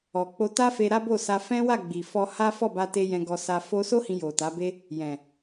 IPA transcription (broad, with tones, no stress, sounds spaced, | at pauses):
ɔ˨ k͡p o˧ t a˦ f e˧ ɾ a˦ b o˦˨ s a˧ f ɛ̃˦ w a˦˨ ɡ͡b i˨ f ɔ˧ h a˦ f ɔ˦˨ b a˧ t e˧ j ɛ̃˧ ɡ ɔ˧ s a˧ f o˧ s o˦ h ĩ˧ j o˨ t a˨˦ b e˦ | j ɛ̃˨